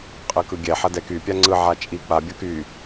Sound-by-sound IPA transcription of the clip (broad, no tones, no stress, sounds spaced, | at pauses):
qʼ ɯ k ɯ ɡʲ ɛ ħ ɐ d ɛ k y pʲ a ŋ͡ǀ ɯ ʕ a t͡ʃʼ i k͡p a bʲ ɐ k y